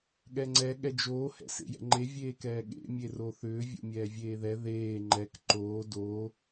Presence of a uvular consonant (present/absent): absent